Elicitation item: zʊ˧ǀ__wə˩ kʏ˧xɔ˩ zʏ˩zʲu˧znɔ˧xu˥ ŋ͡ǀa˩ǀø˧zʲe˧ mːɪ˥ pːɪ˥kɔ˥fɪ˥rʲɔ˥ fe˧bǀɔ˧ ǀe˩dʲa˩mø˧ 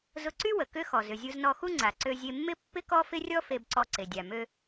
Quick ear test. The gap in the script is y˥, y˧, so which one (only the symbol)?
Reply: y˥